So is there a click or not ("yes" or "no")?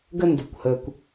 no